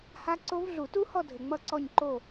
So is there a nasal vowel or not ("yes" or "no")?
no